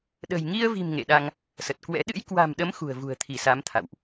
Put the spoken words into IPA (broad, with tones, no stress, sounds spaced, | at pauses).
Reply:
ɗ ə̤˨˩ j ŋ i˧ ə̯ v i̤˨˩ m ŋ ḛ˧˨ ɗ a˧ ŋ | s ə˨˩ t̚ k w ɛ̰˧˥ ɗ ɨ̰˧˥ j k w a̤˨˩ m ɗ ə˨˦ m x ṳ˨˩ ə̯ v ṳ˨˩ ə̯ t̪ʰ i˧˩ s a˨˦ m t̪ʰ a̰˧˨ w ʔ